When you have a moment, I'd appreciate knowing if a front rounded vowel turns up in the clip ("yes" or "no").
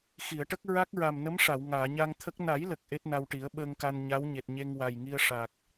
no